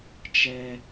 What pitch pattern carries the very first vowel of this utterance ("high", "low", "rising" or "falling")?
high